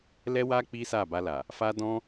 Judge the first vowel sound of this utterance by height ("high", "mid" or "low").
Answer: mid